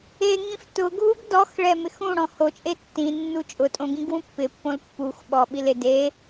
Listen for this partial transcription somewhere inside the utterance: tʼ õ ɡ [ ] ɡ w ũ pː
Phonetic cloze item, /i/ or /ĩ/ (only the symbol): ĩ